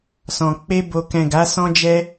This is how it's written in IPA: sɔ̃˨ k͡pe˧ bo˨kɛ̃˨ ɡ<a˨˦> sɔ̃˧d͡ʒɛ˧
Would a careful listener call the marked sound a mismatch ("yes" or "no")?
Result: no